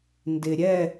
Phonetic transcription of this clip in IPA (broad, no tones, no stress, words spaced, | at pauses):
ndɪ ɾʲɛ